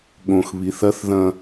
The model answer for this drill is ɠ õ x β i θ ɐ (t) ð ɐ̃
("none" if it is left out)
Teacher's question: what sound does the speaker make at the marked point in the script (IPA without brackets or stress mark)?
θ